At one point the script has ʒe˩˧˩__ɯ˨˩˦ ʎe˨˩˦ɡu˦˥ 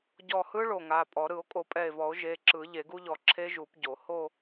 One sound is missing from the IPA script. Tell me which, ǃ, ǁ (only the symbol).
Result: ǁ